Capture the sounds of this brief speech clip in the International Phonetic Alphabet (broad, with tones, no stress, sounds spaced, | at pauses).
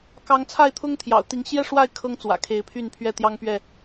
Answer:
k ɑ˨˦ ŋ t͡sʰ a˥˨ ɪ̯ t̪ʰ ʊ˦ ŋ t̪ʰ j ɑ̰˨˩ ʊ̯ t̪ i˨˦ ŋ ɕ j ɛ˥˨ ʂ w a˥˨ ɪ̯ kʰ ɤ˦ ŋ t͡s w ä̰˨˩ kʰ e˨˦ ɪ̯ pʰ y˥˨ n pʰ ɥ ɛ˥˨ t̪ j ɑ˦ ŋ p ɥ ɛ˥˨